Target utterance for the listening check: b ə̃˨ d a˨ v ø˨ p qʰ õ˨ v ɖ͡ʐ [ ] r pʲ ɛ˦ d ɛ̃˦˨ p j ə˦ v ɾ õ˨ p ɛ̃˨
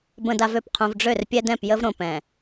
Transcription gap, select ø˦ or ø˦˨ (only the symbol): ø˦˨